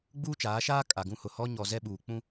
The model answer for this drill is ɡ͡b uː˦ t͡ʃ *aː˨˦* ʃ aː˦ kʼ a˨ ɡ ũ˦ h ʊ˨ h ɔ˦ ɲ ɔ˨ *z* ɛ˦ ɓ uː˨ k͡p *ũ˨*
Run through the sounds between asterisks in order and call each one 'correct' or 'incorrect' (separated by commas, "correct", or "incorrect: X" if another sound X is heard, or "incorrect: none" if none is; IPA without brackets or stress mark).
correct, correct, incorrect: ũ˦